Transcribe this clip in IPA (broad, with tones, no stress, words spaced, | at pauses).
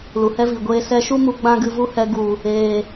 lu˨hɛ˦vi˨ɡʷeː˧ sɛ˧ʃu˦ mu˧ ɡ͡bã˦ɡɨ˧vu˦hɛ˧ ɡu˨ | eː˨